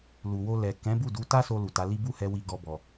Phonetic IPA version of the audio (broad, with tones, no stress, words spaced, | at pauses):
lu˨wo˧lɛ˨ kɛ̃˨˦bu˦˨du˨˦ ta˦so˧ lu˨ta˨˦li˦ bu˦˨hɛ˧ wi˧ɡɔ˧bɔ˨